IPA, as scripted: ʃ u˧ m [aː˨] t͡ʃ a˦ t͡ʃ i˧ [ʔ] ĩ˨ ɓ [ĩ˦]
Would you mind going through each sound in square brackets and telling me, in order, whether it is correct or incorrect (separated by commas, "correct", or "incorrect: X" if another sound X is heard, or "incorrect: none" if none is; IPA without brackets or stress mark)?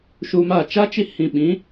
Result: incorrect: aː˦˨, incorrect: h, incorrect: ĩ˨˦